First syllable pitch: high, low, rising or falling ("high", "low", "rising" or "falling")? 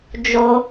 high